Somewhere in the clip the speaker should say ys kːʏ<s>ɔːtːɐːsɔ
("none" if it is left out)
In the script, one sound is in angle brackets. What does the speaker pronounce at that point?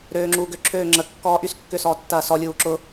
s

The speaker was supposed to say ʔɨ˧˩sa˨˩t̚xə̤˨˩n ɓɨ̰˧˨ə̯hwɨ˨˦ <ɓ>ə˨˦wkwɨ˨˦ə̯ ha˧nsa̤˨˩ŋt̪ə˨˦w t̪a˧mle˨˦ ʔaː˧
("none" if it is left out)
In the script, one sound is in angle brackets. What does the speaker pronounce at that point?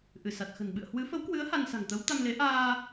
f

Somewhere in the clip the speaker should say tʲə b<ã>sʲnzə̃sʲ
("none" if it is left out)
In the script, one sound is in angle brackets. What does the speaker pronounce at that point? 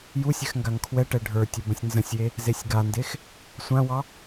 ə̃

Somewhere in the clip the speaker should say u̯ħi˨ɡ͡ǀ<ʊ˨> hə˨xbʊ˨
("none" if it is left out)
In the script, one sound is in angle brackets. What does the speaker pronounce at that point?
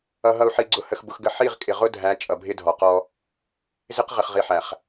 ʊ˨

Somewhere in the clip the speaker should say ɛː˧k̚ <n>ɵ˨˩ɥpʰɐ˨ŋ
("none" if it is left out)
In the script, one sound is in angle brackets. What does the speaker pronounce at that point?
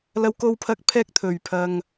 t̪ʰ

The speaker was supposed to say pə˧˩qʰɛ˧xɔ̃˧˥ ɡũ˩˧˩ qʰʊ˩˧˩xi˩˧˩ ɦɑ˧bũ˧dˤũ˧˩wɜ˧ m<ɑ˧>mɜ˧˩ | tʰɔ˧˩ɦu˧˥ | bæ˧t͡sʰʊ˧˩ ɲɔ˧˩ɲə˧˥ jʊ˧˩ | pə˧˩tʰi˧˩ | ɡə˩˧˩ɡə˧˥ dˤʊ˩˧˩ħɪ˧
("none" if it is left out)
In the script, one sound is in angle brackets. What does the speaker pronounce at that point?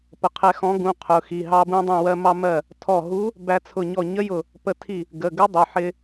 ɑ˧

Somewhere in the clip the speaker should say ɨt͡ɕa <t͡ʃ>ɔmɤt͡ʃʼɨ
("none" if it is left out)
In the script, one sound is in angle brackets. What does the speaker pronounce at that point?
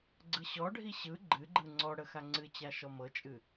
ʃ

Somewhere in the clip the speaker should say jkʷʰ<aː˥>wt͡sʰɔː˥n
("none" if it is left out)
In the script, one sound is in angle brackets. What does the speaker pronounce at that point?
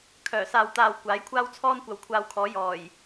aː˥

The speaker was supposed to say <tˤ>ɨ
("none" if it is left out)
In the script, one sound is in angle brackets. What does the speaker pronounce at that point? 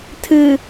tʰ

